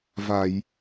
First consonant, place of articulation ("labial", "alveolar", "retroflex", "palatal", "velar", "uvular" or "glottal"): labial